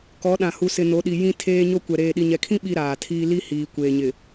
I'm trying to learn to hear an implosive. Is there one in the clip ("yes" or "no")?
yes